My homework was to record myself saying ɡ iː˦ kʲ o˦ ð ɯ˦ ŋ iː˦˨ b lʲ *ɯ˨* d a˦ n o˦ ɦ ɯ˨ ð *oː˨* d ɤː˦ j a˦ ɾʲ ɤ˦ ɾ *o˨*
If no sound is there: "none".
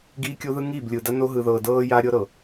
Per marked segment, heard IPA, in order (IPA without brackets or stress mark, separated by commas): ɯ˨, ɤː˨, ɤ˨